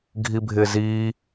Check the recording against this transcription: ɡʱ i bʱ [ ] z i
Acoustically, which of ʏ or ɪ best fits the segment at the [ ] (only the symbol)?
ɪ